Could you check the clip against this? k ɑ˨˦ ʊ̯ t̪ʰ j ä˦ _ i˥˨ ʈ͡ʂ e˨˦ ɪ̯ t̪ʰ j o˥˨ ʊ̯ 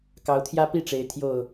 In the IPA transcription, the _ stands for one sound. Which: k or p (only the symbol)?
p